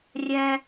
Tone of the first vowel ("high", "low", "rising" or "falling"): high